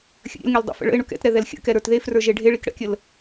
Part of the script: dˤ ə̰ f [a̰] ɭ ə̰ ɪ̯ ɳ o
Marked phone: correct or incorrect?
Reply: incorrect